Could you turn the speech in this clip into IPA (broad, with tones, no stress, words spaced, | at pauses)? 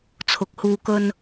t͡sʰʊ˨k̚ huː˨kɵ˧n